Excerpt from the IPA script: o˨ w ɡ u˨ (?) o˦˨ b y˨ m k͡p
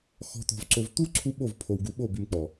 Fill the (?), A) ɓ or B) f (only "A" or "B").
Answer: A